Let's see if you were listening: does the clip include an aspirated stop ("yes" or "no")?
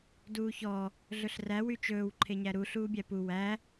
yes